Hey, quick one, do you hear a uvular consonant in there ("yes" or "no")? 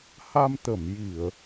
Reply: no